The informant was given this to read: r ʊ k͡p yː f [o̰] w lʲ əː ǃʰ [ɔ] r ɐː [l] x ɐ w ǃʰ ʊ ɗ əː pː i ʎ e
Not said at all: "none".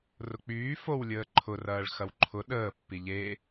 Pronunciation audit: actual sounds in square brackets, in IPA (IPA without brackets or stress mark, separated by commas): o, ʊ, ɭ